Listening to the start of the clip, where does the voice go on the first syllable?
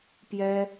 high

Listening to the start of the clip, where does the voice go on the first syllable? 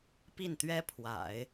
falling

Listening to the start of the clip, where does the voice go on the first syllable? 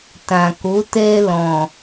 low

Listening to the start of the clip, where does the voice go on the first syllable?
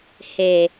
low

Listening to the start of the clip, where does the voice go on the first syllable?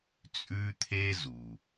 high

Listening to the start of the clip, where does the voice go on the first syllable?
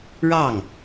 falling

